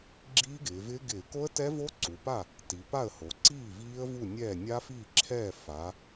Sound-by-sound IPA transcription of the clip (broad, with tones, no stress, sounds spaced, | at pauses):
ɡ͡ǁ iː˦˥ ɡ ɪː˩˧ v ɪː˦˥ ɡ ɪː˧˩˧ k o˦˥ ə̯ t ɛ˦˥ v oː˦˥ ǀ u˩˧ p a˥˩ | t i˩˧ p a˥˩ ə̯ h o˩˧ ǀ iː˥˩ v iː˦˥ ə̯ v u˥˩ nʲ ɛː˥˩ nʲ a˦˥ f iː˥˩ ǁʰ ɛː˥˩ f a˩˧